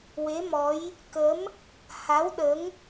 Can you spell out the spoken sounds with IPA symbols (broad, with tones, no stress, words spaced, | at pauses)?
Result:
we˧˥mɔ˧˥j | kə˧˥m | ha˧˥wɗə˧˥ŋ